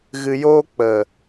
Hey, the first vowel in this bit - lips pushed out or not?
no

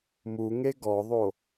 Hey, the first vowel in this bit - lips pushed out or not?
yes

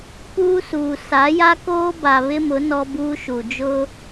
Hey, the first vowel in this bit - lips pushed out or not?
yes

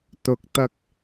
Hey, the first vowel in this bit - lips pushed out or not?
yes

